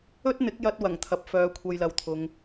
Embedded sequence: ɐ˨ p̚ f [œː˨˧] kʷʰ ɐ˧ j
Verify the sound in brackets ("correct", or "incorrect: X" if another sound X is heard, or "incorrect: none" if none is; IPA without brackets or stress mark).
correct